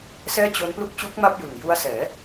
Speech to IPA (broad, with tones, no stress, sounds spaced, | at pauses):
s ɛː˥˩ t͡ɕ o˦˥ n p l u˥˩ k̚ t͡ɕ uː˦˥ k̚ m a˥˩ p̚ j ɯ˨˩ ŋ j u˦˥ a̯ s ɛː˩˦